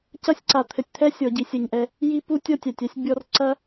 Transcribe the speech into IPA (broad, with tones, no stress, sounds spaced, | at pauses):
c ɐ˦ sʲ ǀ a˨ t̪ʰ ɘ˨ tʲ t̪ʰ ɛ˦ sʲ ɔ˨ ɟ i˨ sʲ ɐ˦˨ ɲ ʔ ɛ˦ | j i˦ p u˦ tʲ ɔ˦ tʲ a˨ tʲ a˦ sʲ bʲ ɔ˦ r ǀ ɐ˦